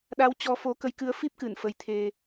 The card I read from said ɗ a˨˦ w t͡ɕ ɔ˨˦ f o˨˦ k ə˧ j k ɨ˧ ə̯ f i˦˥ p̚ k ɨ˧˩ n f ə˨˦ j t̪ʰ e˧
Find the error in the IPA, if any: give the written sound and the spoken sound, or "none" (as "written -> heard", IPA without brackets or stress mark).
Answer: none